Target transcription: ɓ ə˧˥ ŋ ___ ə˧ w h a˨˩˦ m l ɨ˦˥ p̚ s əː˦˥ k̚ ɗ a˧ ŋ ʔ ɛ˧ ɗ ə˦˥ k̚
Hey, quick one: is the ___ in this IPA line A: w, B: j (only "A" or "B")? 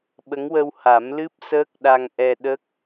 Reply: A